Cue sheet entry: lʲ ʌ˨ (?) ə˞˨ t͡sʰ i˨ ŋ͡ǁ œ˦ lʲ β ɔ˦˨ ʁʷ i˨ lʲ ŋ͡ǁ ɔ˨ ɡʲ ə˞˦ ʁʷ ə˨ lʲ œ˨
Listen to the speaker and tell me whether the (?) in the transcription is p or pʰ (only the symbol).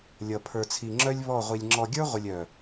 pʰ